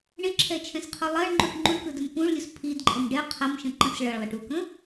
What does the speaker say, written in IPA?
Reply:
ɳ ɪ ǁʰ ɛ t͡ʃʰ ɛ̃ s qʰ o lˠ ɐ ɳ ŋ͡ǃ u ʈ ŋ͡ǃ u ɳ k ɯ d ə m p ũ ɭ lʲ u s pʰ i d ǃʼ ə m ɖ ɛ qʰ ɐ m ʃ ə̃ ǃ ə̃ s ɭ ɐ ɭ lˠ ɐ ʈ u k ə̃

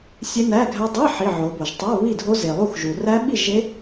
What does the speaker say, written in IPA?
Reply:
sʲ e˦˥ n æ˧˥˧ ɡʱ æ˦˥ dˤ i˧˥˧ ħ i˧˥˧ ʕ o˨˦ b o˨ ʒ tˤ o˧˥˧ β i˥˨ dʱ o˦˥ z e˨ lˠ u˥˨ x ʒ u˨ r æ˦˥ ɓ i˥˨ ʒ e˦˥

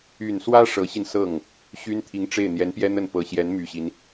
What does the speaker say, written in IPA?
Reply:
y˨˩ n s w ä˥ ʂ ɤ˧˥ ɕ i˧ n s ɤ˥˩ ŋ | ɕ y˥ n t̪ʰ i˧˥ ŋ ʈ͡ʂ e˥˩ ɪ̯ n̪ j ɛ˧˥ n p j ɛ˥ n̪ ə˥˩ n p ɤ˨˩ ɕ j ɛ˧˥ n m y˨˩ ɕ i˦ n

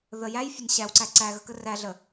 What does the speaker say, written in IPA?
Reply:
ð ə j æ j fʲ ə n ɕ æ w ǀ æ ǀ æ ɣ ə k ə r æ ɮ ə

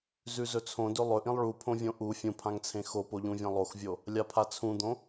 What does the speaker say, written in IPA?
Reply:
z ʉ z ɵ t͡sʰ õ d ɵ lˠ ɵ ʔ ĩ lˠ ɭ u pʰ õ vʲ õ ʔ u fʲ ũ pʰ ã ŋ t͡sʰ ẽ x o p o ʎ ũ vʲ ã lˠ o x vʲ o | lʲ a pʰ a t͡sʰ ũ d̪ õ

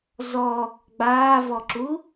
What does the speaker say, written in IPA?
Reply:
z ɔ | ɡ͡b aː v ɔ ǁ u

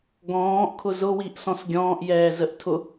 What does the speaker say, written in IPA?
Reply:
ɡ ɔ̃ː ʔ kʰ ʊ z ʊ w i ʔ s ɔ̃ s ɡʲ ɔ̃ː ʔ j ɛː z ə ʔ tʰ ʊ

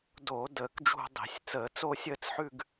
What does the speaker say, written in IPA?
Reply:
d oː˧˩˧ d əː˧˩˧ k d͡ʒ ṳ˥˧ dˤ e̤˧˩˧ sʲ t͡s əː˧˩˧ t͡s o˥˧ sʲ əː˥˧ t͡s ħ ʉ˥˧ ɡ

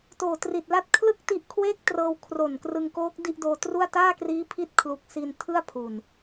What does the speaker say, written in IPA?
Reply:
t oː˨˩ t r i˨˩ t̚ l a˥˩ t̚ kʰ l ɯ˥˩ k̚ t i˦˥ ʔ kʰ w eː˥˩ k̚ t r ɤː˧ w kʰ r o˨˩ n k r ɯ˧ ŋ k oː˦˥ k̚ d i˥˩ ʔ d oː˧ t r u˥˩ a̯ t aː˥˩ k r iː˦˥ pʰ i˦˥ t̚ kʰ l u˦˥ k̚ s i˧ n tʰ ɯ˥˩ a̯ pʰ u˨˩ n

